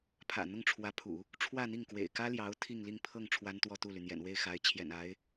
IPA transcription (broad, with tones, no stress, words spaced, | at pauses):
pʰä̰˨˩n̪ʊ˥˩ŋʈ͡ʂʰwä˧˥pʰṵ˨˩˦ | ʈ͡ʂʰwä˥˧n̪i˥˩ŋkwḛ˨˩ɪ̯ kä˥ljɑ˧˥ʊ̯ t̪ʰi˥˧ŋli˥˧ŋpʰɤ˥˩ŋ ʈ͡ʂʰwa˥nt̪wɔ˥˧t̪u˥˩ly˩ n̪jɛ̰˨˩nwe˥˩ɪ̯xa˧˥ɪ̯t͡ɕʰjɛ̰˨˩n a˧˥ɪ̯